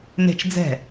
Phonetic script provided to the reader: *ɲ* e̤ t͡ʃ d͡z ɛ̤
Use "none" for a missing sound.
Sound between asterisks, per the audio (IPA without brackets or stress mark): n